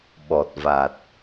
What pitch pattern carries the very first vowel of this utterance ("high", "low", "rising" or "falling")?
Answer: low